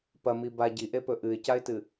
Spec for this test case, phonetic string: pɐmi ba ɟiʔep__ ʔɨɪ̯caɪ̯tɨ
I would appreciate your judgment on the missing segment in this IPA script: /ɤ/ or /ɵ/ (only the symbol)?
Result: ɵ